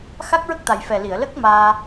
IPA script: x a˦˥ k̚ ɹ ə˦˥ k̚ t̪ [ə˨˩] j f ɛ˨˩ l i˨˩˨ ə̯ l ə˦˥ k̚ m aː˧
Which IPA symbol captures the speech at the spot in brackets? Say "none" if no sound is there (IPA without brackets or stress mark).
a˨˩